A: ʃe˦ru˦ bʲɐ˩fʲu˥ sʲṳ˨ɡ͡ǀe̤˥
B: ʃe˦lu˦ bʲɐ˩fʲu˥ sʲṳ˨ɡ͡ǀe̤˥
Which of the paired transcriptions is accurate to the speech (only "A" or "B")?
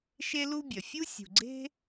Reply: B